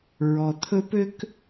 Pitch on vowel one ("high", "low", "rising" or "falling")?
low